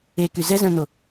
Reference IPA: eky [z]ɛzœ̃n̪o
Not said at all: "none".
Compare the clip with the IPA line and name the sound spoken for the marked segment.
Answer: z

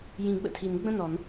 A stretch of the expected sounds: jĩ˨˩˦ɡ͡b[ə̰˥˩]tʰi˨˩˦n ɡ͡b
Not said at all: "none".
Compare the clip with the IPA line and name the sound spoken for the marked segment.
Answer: ə̰˥˩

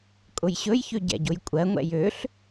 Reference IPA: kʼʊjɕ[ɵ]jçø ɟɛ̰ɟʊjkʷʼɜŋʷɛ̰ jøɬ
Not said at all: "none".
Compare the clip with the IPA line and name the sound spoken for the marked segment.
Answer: ɵ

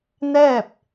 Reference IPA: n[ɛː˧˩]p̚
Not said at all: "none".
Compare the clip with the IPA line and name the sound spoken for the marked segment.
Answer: ɛː˥˨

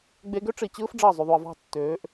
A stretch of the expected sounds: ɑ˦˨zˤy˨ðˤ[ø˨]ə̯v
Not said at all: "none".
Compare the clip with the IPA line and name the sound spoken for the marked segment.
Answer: u˨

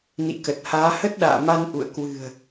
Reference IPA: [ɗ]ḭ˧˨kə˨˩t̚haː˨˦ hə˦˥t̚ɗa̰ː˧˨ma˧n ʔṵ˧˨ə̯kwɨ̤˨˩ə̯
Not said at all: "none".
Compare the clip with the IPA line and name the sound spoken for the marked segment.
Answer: n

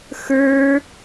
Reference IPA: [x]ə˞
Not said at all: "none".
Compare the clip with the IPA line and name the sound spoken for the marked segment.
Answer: x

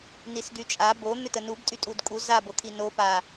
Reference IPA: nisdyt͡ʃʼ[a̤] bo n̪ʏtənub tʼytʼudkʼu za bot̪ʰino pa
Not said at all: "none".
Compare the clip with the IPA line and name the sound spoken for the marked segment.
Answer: a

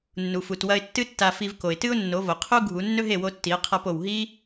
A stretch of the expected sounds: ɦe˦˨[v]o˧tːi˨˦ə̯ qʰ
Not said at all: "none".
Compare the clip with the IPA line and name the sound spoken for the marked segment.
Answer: w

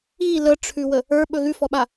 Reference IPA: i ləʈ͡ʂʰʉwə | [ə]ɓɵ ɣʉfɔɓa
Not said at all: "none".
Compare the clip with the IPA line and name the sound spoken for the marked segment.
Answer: ə˞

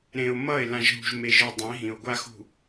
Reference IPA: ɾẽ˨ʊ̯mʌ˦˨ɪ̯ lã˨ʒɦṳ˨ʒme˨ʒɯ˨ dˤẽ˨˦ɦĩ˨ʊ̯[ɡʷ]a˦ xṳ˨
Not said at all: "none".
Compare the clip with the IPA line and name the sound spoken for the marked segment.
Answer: ɡʷ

